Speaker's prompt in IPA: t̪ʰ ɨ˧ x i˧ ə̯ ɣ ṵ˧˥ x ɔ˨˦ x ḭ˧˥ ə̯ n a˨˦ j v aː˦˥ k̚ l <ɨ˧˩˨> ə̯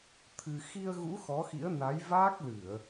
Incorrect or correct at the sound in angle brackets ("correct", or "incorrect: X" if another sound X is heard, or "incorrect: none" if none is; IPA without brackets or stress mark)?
correct